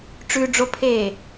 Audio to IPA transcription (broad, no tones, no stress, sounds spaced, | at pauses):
ʈ͡ʂ ʉ ɖ͡ʐ o pʰ eː